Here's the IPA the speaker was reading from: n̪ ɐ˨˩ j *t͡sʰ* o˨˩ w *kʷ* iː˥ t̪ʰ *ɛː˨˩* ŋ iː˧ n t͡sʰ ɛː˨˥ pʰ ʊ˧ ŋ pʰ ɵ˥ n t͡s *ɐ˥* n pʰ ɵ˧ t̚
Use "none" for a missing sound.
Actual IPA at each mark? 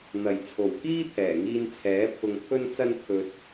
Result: t͡sʰ, k, ɛː˨˩, ɐ˥

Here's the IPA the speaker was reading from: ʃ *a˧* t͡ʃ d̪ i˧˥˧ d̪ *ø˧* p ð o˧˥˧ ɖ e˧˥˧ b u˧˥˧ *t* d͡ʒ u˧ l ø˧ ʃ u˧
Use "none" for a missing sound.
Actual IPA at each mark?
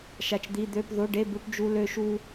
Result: a˧, ø˧˥˧, ʈ

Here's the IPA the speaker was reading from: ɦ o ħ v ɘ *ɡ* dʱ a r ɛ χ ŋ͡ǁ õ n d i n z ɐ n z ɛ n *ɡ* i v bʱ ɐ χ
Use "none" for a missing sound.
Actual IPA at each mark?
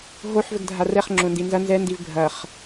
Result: ɡ, d

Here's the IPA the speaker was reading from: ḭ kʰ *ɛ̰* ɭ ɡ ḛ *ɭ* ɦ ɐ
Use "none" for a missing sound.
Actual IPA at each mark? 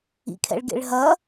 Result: ɛ̰, ɭ

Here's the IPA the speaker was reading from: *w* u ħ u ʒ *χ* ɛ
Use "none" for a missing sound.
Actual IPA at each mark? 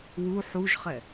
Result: w, χ

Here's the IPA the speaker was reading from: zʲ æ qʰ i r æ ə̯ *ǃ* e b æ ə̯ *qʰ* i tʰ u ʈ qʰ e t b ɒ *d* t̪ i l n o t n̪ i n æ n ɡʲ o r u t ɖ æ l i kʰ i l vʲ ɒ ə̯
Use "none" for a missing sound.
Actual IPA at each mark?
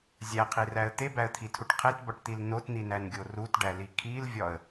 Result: t̪, t̪ʰ, ʈ

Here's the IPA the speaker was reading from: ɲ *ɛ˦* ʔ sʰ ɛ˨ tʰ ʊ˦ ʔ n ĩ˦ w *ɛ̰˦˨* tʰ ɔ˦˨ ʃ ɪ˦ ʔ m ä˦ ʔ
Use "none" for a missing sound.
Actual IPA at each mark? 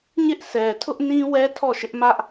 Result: ɪ˦, ɛ˦

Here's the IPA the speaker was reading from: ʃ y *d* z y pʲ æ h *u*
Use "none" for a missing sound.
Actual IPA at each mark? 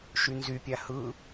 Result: n, ɯ

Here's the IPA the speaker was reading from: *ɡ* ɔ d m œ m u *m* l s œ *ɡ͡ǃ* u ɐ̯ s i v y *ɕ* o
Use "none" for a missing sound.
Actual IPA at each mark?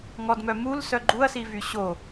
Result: ŋ, none, ɡ͡ǃ, ɕ

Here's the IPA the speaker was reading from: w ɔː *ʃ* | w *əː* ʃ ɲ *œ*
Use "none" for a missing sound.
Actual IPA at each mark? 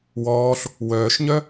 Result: ɬ, œː, œ

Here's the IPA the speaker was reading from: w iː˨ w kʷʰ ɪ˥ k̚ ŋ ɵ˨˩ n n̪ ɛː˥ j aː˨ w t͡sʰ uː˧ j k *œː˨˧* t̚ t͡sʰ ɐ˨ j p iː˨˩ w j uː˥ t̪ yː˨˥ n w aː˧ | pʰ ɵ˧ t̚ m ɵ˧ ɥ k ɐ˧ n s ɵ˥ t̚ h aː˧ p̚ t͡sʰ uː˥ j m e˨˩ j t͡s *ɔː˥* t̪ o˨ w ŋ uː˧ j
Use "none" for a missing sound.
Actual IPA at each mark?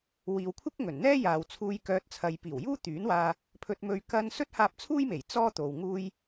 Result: œː˧, ɔː˥

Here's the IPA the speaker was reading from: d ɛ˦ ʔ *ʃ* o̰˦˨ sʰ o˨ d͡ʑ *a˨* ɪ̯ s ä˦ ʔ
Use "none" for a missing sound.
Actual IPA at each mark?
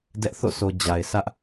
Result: θ, a˨

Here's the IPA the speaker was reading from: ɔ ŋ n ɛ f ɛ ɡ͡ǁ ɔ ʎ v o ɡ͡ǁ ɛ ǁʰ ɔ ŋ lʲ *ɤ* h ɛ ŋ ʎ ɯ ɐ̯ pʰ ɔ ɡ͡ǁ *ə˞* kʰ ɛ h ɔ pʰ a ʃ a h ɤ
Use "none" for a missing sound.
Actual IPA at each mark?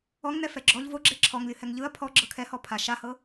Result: ɯ, ɤ

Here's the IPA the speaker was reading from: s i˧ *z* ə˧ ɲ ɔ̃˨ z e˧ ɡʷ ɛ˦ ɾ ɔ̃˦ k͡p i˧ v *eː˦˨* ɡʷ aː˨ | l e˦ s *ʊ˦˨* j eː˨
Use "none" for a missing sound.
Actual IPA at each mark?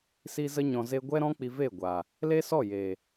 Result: z, eː˦˨, ɔ˦˨

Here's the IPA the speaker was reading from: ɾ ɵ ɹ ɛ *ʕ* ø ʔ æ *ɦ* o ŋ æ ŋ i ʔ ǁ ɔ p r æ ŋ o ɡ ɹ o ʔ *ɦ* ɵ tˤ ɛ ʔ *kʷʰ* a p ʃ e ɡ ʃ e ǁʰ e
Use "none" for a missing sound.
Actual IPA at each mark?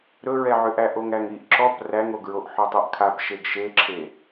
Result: ʕ, ʔ, ħ, kʰ

